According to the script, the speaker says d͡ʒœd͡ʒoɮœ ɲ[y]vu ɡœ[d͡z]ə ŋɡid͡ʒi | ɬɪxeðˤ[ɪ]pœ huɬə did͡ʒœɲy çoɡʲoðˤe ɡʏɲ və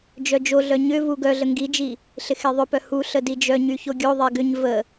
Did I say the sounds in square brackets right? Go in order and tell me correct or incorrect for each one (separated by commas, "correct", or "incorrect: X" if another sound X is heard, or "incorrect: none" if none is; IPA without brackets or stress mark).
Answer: incorrect: ʏ, incorrect: ɮ, incorrect: ʏ